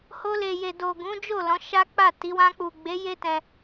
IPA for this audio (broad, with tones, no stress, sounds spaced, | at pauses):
h o˧ l e˨ j e˨ d o˨ ɡ ũ˨˦ d͡ʒ o˦˨ l ɔ̃˨˦ ʃ a˦ k͡p a˦˨ t i˨˦ w ã˧ k͡p u˨ ɡ͡b e˨˦ j e˦ t ɛ̃˧